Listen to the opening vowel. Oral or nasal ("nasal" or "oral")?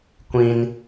nasal